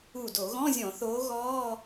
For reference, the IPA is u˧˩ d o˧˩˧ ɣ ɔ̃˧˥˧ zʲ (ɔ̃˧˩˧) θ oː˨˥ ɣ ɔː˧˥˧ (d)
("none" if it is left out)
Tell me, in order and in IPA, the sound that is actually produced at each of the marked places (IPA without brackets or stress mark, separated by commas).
ɔ̃˧˩˧, none